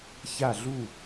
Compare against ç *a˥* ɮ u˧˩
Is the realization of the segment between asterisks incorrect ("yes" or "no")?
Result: yes